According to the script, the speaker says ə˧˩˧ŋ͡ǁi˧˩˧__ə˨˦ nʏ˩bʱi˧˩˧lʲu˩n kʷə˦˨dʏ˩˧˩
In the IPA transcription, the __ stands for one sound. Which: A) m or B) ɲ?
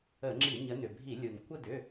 B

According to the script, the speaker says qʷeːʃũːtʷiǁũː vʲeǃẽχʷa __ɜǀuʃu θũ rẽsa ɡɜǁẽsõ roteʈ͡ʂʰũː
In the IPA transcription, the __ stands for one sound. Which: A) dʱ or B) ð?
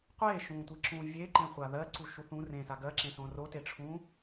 B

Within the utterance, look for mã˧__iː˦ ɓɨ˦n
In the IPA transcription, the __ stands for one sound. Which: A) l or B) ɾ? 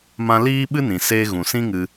A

